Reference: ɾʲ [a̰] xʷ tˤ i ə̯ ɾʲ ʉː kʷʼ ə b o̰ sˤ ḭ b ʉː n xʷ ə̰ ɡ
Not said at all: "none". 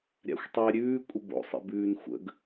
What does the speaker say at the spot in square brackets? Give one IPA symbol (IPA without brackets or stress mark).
a̰